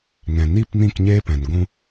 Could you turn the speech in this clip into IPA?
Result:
ŋ ɛ̃˨ n i˦˨ p n ĩ˦˨ k ɲ eː˦ p ɛ̃˨ n ɡʷ ũ˧

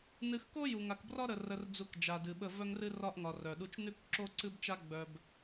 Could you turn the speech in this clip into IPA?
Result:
n ɨ˨ x k o˦ j u˨ ŋ a˨ k b r ɒ˦ ɾ ə˨ r ə˨ r d͡z u˨ k d͡ʒ a˨ d ɨ˨ ɓ ə˦˨ v œ˦ ŋ r ɨ˦ r ɒ˦ ʔ ŋ ɒ˨ r œ˨ ɗ u˦ t͡ʃ n ʉ˦ k ǁ o˦ ǀ ɨ˦ b t͡ʃ a˦ ɡ͡b œ˦ b

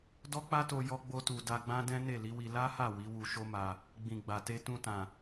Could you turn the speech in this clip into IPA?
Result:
d ɔ˦ k͡p a˦ t o˧ j ɔ˦ ɡ͡b o˧ t u˨ d a˧ ɡ͡b ã˦ d ɛ̃˦ n e˦˨ l i˨˦ w i˧ l a˦ h a˦˨ w i˨˦ w u˧ ʃ o˦ m a˧ | ɡ͡b ĩ˨ ɡ͡b a˨ t e˧ t ũ˧ t ã˨

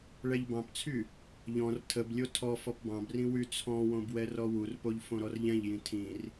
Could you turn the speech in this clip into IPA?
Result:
ɭ ɛ ʎ b ɑ̃ p t͡sʰ y | ʎ ɔ̃ r tʰ ə b lʲ o tʰ ɔ f ɔ p b ɑ̃ b r ĩ w y t͡sʰ ɔ̃ w õ b w ɛ r ɔ w u r p o ʎ f õ ɾ ɔ r ʎ ɛ̃ ʎ j ĩ tʰ ĩ r

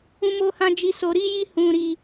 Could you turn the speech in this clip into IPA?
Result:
ũ˦ m o˦ h ã˦ d͡ʒ i˦ s o˧ ɾ i˦ j i˦ h ũ˧ ɾ i˧

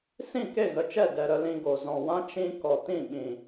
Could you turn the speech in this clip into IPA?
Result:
s ĩ˦˨ k e˦˨ ɣ ə˨ t͡ʃ ɛ˦˨ d ɛ˧ ɾ ə˧ l ĩ˧ ɡ o˨ z ɔ̃˨ w ã˦ t͡ʃ ĩ˧ k ɔ˨ t ĩ˦˨ ɓ ĩ˨

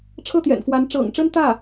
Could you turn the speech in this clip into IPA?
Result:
ʈ͡ʂʰ ɤ˥˩ t̪ j ɛ̰˨˩ n f w a˧˥ n ʈ͡ʂ ɤ̰˨˩ ŋ ʈ͡ʂ ə˥ n t̪ ä˥˩

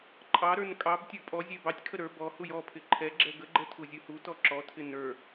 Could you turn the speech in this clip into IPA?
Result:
ǃʼ ɑ ɾ ə˞ n kʼ ɑ b tʲ ə˞ pʼ ɔ zʲ ɛ b ɑ tʲ kʰ ə ɾ ə˞ b ɔ h u j ɔ pʰ ɪ ǃʰ ɛ ɡ͡ǁ ɛ ɡ ə ɡ͡ǃ ɛ tʰ u zʲ u h u t ɔ ǁ ɔ tʰ ɪ n ə˞

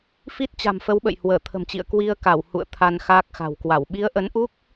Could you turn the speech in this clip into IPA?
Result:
f i˦˥ t̚ t͡ɕ a̤˨˩ m f ə˨˦ w ɓ ə̰˧˨ j h w əː˧˩ t̪ʰ ə̤˨˩ m t͡ɕ ḭ˧˨ ə̯ k w i˧ ə̯ k a˧˩ w h ṵ˧˨ ə̯ t̪ʰ a˧ n x aː˦˥ k̚ x a̤˨˩ w k w a˧˩ w ɓ i˨˦ ə̯ ʔ ə˨˦ n ʔ u˦˥ k̚

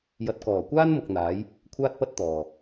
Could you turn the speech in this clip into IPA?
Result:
j ɐ˨ t̚ k ɔː˨˩ kʷ aː˥ n m ʊ˨ k̚ n̪ aː˨˥ j | kʷʰ aː˥ t̚ p ɐ˥ t̚ t̪ ɔː˨

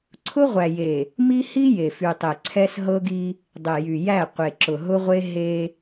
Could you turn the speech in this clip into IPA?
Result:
ǀʰ ʊ˦ ʁʷ æ˨ j e˨ | m i˦ h i˦ j e˨ f y˨ tˤ e˨ ǀʰ ɛ˦ s ɦ ɤ˦ ɡ i˦ | dˤ e˨ j y˨ j æ˦˨ qʷ e˨ ǁ ʊ˨ ɦ ʊ˦ ʁʷ e˦ ɦ e˦

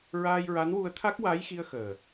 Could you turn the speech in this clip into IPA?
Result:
ɹ aː˧ j ɹ a˧˥ n w u˧ ə̯ t̪ʰ a˦˥ k̚ w a˧˥ j x i˧ ə̯ x əː˨˩

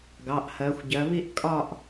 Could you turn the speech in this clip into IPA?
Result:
ɡ ɑ˩˧˩ ʔ h ɜ˩˧ xʷ ɟ ɜ˩˧ β i˥˧ ʔ kʼ ɒ˥˧ ʔ

